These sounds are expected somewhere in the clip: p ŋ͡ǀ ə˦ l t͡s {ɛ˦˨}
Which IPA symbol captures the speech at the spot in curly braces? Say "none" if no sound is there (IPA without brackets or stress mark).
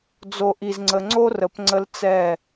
ɛ˦˨